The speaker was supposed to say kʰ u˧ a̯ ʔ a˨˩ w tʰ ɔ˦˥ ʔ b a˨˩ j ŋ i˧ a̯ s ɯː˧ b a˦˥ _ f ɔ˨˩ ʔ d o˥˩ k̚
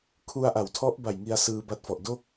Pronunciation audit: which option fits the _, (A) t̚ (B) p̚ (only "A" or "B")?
A